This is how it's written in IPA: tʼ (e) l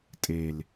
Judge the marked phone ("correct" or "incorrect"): correct